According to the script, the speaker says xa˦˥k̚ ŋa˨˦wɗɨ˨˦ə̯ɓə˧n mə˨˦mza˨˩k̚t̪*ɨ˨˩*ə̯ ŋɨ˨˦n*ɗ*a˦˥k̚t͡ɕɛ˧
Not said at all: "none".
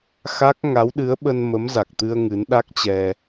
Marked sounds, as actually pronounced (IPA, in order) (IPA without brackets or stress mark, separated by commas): ɨ˧, ɗ